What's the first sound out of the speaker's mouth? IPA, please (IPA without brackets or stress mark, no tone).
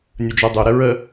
nʲ